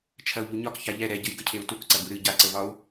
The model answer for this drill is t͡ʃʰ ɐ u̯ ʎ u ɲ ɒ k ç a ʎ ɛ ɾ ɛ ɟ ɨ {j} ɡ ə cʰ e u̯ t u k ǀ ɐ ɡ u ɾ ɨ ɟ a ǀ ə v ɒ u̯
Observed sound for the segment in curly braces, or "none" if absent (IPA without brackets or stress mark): j